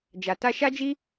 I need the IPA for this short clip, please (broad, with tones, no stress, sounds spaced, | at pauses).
d͡ʒ a˨ t a˧ ʃ a˦ d͡ʒ i˦